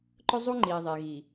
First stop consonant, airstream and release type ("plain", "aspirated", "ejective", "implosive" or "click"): click